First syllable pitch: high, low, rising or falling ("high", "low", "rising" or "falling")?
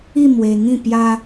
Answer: falling